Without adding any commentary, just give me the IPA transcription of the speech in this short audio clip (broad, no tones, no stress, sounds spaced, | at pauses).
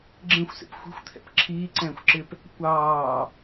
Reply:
ɡ͡ǁ ẽ xʷ s ḛ p xʷ i̤ xʷ t̪ʰ ɛ̰ p ǁʰ iː ǀ ɛ̃ː xʷ ǁ ɪ p | kʷ ɑː